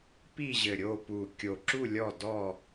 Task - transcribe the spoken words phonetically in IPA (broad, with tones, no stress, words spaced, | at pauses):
pi˦˨ʑɘ˨˩ ɾʲo˦˨ pu˨˩ kʲo˨˩ǁu˦˨ lʲɔ˦˨dɔ˦˨